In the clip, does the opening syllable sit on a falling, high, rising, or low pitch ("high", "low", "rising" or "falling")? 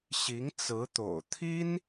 rising